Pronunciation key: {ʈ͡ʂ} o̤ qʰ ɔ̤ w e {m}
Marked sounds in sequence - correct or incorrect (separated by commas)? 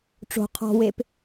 correct, incorrect